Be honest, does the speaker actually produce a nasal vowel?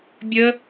no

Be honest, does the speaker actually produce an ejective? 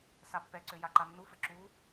no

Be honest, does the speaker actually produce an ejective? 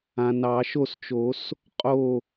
yes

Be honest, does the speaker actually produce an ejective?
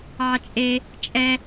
yes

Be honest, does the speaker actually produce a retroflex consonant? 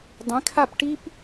yes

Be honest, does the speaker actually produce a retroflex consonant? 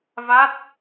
no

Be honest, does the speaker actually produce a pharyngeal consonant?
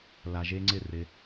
no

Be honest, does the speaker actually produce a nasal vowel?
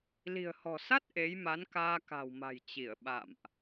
no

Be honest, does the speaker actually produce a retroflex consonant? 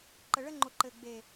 yes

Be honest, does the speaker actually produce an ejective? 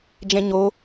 no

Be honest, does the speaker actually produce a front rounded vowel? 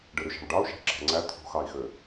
yes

